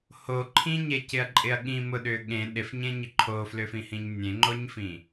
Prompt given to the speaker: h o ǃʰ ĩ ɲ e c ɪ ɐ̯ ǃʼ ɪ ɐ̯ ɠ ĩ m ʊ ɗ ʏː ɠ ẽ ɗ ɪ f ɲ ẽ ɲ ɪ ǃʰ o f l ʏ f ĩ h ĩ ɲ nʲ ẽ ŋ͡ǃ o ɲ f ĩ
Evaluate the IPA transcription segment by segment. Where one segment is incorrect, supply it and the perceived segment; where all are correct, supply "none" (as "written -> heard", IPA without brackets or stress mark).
none